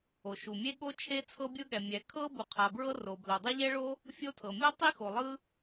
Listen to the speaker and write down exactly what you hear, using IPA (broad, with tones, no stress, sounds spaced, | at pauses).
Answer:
o˩ ʃ u˩ mʲ e˥ ɠ o˥ t͡ʃʰ e˥ t͡sʰ ɤ˥ bʲ ɯ˥ ɠ ɛ˩ mʲ ɛ˩ kʰ ɤ˥ b u˩ qʰ a˩ b ɹ ɤ˥ r o˩ b l o˩ dˤ ɛ˥ ʎ ɛ˥ ɭ o˥ | fʲ o˥ tʰ ɤ˩ mʲ ɔ˥ tˤ i˥ x o˩ lˠ ɯ˥